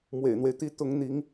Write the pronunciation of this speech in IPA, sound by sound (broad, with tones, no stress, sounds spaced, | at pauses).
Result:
m w ḛ˨˩ ɪ̯ n̪ w e˦ ɪ̯ t̪ i˥ t̪ ʊ˧˥ ŋ n̪ i˧˥ ŋ